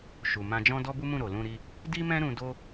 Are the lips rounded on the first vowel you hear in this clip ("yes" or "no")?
yes